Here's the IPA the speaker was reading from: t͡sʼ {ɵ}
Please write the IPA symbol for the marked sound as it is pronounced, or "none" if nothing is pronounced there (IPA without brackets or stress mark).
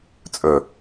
ɵ